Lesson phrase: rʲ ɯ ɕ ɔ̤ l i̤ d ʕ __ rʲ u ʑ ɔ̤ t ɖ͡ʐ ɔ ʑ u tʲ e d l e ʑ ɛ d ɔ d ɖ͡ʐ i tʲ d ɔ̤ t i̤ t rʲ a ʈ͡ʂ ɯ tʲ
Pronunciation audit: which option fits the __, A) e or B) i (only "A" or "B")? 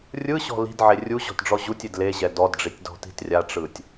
A